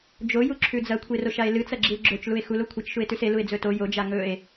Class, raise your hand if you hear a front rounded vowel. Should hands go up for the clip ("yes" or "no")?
no